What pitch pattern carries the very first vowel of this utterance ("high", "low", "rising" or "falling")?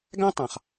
high